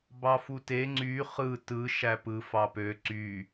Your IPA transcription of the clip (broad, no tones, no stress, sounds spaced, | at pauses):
b ɑ f u t e ŋ͡ǀ y χ ɯ t ɯ ʃ æ p ɯ f ɑ p ø ǀ y